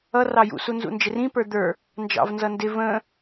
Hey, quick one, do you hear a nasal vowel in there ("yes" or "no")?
yes